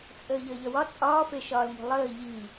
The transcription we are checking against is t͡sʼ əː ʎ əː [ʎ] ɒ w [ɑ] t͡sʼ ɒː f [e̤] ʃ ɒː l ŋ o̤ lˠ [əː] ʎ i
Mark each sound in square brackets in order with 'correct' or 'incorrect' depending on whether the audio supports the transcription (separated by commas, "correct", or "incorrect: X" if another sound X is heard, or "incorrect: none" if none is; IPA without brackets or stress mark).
correct, incorrect: ɒ, incorrect: e, correct